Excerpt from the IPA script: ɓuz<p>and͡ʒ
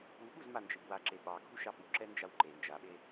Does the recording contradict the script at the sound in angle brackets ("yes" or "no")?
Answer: yes